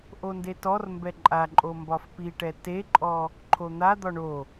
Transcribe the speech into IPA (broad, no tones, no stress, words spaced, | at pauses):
ʔondetɔrmbɛ ǃʼa ǃʼombɒfpiʈɛ teǃʼɔ | ǃʰon̪ad̪ɒ ɳo